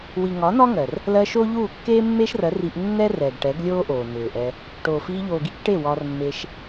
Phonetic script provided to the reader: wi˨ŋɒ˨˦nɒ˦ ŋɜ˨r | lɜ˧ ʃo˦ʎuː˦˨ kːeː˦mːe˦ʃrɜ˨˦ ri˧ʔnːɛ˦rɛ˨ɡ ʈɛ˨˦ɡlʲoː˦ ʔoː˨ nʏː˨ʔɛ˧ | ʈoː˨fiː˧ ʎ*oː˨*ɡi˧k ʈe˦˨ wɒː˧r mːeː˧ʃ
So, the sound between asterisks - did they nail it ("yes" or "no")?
yes